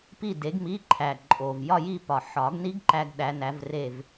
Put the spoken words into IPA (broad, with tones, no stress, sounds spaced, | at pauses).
p i˥˨ d e˨˥ ɡ m i˧˥˧ ǃʰ æ˨˩ ǃʼ o˨˩ v j ɒ˥˨ j i˥˨ p ɒ˨˩ ħ ɒ˨˩˦ ɡ n i˥ ɡ ǃ æ˥ ɡ ɗ æ˨˥ n æ˨˥ v r e˥˨ v